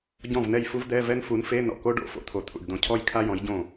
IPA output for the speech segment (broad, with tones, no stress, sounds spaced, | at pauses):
ɟ ɔ̃˥˩ v n ɛ˥˩ j f u˥ v d̪ ɛ˧˥˧ v ɛ˥ n f u˨˦ n f e˧˥˧ n ɔ̰˥˩ k o˥ ɖ o̰˧˥˧ f o̰˥ t̪ʰ o˨ t̪ʰ ṵ˨ ɖ d̪ õ˨˦ cʰ ɔ˥ j kʰ a˥ j ɔ̃˨˦ j ɟ õ˥˩